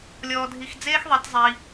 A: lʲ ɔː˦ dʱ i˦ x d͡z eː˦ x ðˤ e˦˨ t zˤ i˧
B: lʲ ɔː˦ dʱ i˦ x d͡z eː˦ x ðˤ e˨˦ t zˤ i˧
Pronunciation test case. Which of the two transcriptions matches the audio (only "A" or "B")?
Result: B